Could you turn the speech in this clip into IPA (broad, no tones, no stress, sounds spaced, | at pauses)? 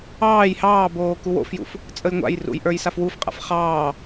ɑː j h ɑː b oː k u w o̰ f j ṵ f | t͡sʼ ə j ŋʷ a̰ j r ṵ j ʔ ə˞ j s a f w u f qʼ a̰ f χ ɑː